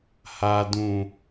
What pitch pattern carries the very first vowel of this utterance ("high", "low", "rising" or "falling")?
low